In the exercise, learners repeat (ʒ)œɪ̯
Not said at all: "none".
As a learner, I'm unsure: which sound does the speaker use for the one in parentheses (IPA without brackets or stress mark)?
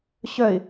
ɕ